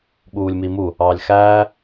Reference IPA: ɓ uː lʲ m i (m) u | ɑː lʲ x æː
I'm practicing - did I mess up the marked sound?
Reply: no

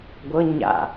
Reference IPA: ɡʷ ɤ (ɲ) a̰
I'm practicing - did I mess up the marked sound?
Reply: no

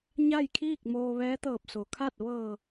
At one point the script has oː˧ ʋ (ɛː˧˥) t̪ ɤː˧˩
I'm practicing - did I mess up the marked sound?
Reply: no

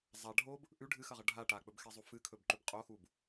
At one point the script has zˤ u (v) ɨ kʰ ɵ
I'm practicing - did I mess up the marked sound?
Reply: yes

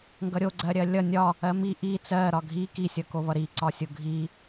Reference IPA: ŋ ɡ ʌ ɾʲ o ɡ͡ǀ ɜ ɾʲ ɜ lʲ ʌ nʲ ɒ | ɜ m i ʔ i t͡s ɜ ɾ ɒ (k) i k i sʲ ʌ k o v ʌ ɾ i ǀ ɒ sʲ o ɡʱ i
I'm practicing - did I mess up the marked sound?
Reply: yes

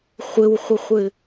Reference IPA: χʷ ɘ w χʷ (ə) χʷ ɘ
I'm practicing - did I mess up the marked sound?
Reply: no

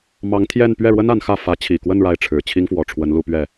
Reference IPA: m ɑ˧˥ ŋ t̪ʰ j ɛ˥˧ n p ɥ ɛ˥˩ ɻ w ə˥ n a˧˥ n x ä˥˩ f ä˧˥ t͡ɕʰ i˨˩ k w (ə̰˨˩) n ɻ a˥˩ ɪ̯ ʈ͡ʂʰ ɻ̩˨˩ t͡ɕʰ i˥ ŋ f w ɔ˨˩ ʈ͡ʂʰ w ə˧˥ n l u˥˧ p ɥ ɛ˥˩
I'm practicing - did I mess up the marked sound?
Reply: yes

